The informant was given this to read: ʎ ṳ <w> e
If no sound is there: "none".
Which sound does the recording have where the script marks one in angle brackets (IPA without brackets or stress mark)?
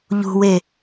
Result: w